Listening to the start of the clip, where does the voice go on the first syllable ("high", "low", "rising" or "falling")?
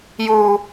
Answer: high